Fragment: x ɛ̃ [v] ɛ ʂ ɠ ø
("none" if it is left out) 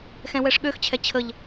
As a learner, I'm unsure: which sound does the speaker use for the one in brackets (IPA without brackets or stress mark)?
w